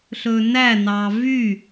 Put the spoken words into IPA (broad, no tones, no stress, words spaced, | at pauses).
ɬɵnænɑ vy